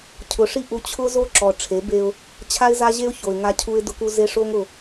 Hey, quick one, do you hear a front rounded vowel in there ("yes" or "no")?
no